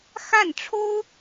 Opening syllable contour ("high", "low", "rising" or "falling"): falling